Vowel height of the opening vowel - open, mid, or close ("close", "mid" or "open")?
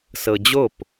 mid